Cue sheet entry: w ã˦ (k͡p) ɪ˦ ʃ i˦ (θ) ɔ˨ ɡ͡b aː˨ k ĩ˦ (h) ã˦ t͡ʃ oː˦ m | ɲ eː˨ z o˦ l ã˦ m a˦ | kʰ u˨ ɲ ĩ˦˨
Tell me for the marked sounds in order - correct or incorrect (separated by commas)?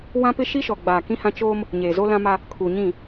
incorrect, incorrect, correct